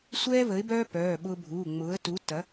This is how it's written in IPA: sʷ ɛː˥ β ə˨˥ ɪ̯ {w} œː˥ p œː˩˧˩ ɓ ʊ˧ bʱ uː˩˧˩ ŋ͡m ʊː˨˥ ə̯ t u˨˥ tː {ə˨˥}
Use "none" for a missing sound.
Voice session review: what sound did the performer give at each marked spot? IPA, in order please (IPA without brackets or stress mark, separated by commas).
b, ɐ˨˥